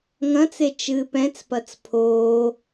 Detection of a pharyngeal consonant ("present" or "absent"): absent